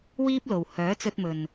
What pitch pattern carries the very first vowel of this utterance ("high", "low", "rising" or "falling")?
high